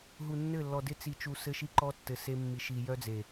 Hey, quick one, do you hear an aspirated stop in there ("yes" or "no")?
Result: no